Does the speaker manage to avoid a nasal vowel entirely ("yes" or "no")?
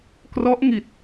yes